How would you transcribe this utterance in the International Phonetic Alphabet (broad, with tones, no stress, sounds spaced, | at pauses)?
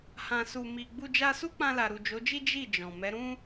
h ã˧ s u˨ m i˨ ɡ͡b u˧ d͡ʒ a˧ s u˦ k͡p ã˧ l a˨ ɾ u˨ d͡ʒ o˨˦ d͡ʒ i˦ d͡ʒ i˦˨ d͡ʒ ɔ̃˨ m ɛ˨˦ ɾ ũ˦